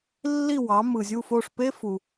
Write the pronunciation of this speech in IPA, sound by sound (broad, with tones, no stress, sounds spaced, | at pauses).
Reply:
lː i˥˩ w ɑ˩˥ m ɯ˩ zʲ u˥˩ f o˥˩ ʂ p e˥ f u˩